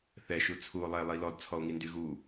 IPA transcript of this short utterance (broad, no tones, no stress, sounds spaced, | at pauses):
θ ɛ ʃ u t͡sʰ u o̯ lˠ ɛ e̯ lˠ i l ɔ d t͡sʰ ɔ o̯ ŋ i n d y ɣ u